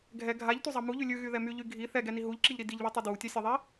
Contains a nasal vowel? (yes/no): no